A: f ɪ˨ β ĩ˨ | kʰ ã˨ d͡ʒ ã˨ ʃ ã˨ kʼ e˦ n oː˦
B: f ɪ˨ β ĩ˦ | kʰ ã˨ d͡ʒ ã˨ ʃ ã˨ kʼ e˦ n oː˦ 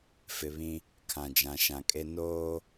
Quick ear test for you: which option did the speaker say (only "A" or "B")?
B